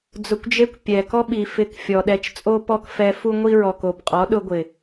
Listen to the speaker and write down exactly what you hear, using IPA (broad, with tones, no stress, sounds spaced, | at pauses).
d͡z ʊ˧ kʷ d͡ʒ e˦ kʷ pʲ ɛ˨ k ɔ˦ ɓ i˨ f ɪ˧ k fʲ ɔ˨ ɗ ɛ˧ t͡ʃ t͡sʼ o˦ p ɔ˦ k f ɛ˧ f u˦ ŋʷ i˦ ɹ ɔ˨ k o˨ b qʼ ɔ˨˦ ɗ ʊ˧ ɡʷ ɪ˨